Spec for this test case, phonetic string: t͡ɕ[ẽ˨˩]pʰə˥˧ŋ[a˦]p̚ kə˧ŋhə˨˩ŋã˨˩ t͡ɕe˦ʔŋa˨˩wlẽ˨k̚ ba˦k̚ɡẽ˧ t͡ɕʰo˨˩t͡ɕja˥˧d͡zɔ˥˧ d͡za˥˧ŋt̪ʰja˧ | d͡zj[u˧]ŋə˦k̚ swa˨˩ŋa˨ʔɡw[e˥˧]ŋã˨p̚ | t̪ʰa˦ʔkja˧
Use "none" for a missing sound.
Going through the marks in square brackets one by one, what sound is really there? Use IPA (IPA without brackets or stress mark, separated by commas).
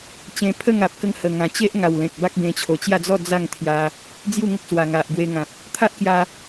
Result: ẽ˧, a˨, u˥˧, e˧